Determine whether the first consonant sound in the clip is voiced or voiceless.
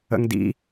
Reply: voiced